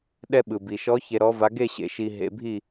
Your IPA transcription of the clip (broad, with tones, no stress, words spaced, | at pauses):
ɗɛ˧ɓɯ˩bi˩ʃɔ˨˥ çe˧ɾɔ˨˥va˨˥ ɡe˥˧ɕḛ˨˩˦ ʃi˧ ɦḛ˧bʱi˥˧